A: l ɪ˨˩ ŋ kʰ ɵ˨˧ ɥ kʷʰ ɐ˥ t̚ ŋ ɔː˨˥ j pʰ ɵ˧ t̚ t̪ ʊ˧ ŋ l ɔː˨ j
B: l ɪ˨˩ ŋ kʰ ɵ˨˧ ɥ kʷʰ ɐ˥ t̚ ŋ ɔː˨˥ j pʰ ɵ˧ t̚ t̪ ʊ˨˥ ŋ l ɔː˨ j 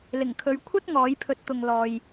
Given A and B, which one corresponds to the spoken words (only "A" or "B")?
A